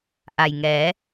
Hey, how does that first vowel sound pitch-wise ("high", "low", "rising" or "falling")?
low